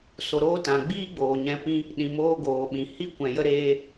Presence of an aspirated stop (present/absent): absent